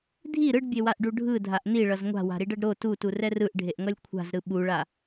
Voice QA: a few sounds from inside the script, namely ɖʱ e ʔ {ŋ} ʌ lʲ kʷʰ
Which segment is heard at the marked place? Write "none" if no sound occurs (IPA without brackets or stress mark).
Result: ŋ